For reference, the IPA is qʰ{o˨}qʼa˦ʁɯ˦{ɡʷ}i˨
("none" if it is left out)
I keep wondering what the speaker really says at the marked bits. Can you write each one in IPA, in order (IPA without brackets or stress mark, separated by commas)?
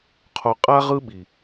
o˨, ɓ